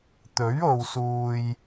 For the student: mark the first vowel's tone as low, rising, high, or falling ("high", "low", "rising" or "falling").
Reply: rising